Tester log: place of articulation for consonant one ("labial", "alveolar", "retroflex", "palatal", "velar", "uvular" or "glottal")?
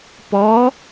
labial